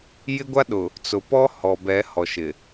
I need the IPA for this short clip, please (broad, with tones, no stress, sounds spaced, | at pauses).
j ɪ˦ ɡʷ a˦ ɗ ʊ˨ | t͡s ʊ˨ p ɔ˦ h ɔ˨ b ɛ˨˦ h ɔ˨ ʃ ɪ˨